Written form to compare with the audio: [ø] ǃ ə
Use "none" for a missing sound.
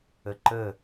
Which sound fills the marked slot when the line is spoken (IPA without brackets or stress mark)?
ə